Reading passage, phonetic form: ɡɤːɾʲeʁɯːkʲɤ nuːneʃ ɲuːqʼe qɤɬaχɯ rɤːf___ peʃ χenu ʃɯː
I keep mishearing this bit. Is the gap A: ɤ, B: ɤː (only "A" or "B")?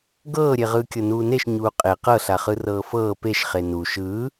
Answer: B